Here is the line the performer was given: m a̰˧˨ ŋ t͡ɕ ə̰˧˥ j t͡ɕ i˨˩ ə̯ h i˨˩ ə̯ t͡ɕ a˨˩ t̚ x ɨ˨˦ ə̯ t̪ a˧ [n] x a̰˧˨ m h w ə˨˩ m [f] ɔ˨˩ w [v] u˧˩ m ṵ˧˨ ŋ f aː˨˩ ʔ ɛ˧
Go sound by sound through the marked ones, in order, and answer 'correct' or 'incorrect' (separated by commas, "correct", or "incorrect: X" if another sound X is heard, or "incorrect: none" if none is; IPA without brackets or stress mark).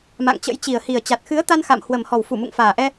correct, incorrect: h, incorrect: f